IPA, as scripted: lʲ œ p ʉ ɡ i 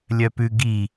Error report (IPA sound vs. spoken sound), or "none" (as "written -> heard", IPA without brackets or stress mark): none